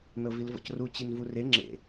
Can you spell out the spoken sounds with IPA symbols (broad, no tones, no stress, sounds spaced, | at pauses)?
n ɤ v i l v ɔ̰ c r u t͡ɕ i n v u r e ŋ͡ǁ ḛ